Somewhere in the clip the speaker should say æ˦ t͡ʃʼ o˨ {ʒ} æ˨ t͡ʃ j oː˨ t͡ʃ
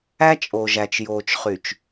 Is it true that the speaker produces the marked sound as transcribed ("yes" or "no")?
yes